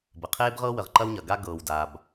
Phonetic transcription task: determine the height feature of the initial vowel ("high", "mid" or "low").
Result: mid